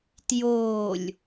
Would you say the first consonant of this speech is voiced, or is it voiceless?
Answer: voiceless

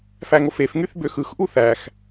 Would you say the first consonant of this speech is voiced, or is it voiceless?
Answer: voiceless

